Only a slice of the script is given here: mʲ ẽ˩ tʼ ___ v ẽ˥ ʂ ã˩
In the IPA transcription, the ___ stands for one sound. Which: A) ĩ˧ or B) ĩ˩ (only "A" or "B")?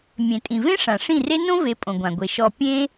B